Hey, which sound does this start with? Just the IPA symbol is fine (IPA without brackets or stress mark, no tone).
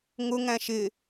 ŋ